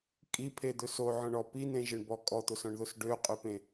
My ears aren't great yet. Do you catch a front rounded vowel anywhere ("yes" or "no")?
yes